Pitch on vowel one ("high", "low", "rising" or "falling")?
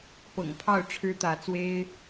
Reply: low